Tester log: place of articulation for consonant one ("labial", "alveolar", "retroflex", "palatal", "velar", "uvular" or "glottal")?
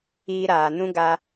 alveolar